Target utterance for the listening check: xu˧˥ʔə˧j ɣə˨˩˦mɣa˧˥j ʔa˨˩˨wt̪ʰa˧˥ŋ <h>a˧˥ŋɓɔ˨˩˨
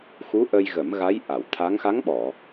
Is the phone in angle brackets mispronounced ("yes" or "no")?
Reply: yes